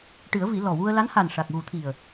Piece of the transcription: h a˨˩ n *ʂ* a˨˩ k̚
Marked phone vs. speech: correct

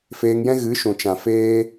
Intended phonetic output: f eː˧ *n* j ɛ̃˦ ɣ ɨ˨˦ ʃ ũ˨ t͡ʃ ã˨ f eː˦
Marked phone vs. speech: incorrect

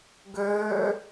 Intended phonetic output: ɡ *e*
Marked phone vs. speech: incorrect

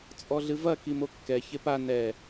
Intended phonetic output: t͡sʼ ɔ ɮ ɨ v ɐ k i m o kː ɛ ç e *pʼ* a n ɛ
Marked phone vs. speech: incorrect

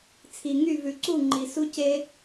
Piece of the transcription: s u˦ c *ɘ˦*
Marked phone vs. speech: incorrect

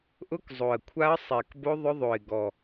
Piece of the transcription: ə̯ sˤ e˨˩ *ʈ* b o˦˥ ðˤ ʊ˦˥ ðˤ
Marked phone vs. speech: incorrect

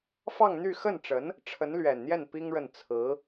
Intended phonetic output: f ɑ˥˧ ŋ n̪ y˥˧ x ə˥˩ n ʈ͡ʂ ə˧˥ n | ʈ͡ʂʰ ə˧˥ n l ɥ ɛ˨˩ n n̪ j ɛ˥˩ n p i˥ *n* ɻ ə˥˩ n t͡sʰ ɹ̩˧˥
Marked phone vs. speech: incorrect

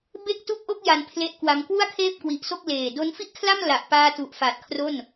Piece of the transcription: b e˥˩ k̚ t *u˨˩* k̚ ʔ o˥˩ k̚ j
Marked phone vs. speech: incorrect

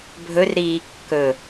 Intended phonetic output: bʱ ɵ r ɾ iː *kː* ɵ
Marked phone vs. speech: correct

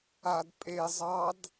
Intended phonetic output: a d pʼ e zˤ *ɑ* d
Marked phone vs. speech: correct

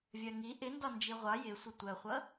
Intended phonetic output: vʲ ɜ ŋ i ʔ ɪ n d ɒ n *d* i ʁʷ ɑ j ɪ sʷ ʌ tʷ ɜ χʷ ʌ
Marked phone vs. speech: incorrect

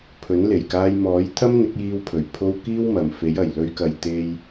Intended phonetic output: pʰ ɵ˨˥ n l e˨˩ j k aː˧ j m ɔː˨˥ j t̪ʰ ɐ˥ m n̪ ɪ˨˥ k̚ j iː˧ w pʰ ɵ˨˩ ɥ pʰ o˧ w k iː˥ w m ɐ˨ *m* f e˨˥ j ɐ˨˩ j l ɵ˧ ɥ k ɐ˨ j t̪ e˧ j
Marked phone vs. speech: correct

